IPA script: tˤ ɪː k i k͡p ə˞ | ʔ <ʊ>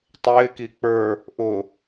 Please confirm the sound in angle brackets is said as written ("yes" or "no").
yes